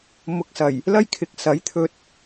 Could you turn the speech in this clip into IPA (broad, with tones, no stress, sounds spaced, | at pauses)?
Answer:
m ʊ˨ k̚ s ɐ˨˩ j | l ɐ˥ j kʰ ɪ˨˥ k̚ s ɐ˨˥ j t̪ʰ ɵ˧ t̚